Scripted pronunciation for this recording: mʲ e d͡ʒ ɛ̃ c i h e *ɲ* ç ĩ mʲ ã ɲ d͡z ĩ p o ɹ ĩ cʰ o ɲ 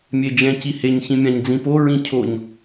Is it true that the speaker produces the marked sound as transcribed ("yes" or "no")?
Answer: yes